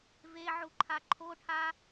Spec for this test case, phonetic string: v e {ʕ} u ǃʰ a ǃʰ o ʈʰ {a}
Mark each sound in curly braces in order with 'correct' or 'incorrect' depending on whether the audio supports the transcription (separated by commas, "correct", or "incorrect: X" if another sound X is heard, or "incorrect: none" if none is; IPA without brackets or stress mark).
correct, correct